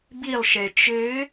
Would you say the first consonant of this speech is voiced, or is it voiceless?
voiced